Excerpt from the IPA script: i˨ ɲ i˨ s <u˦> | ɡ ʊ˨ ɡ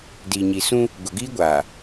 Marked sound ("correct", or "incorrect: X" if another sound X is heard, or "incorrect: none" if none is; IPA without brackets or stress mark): incorrect: ũ˦